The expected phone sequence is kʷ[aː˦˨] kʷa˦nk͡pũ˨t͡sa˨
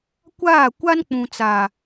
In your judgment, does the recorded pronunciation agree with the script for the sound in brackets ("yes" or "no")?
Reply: yes